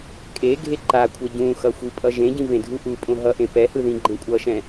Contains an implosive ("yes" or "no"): no